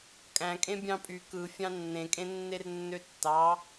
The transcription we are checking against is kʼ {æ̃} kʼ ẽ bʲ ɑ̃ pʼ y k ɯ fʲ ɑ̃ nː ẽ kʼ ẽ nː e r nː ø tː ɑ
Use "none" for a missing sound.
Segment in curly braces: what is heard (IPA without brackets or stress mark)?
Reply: æ̃